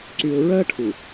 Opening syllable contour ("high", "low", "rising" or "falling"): low